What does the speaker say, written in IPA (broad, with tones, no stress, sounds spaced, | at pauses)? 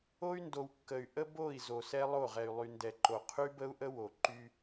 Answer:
o˦ y̯ n d o˨ w kː ə˨ y̯ ʔ ə˦ b o˦˨ i̯ z o˨ s ɛ˦ lˠ o˦˨ ʁ ɛ˨ y̯ lˠ y˨ n d ɛ˨ ǃ o˨ qʰ y˦ b ə˦ u̯ ʔ ə˦ w o˨ ǃ y˦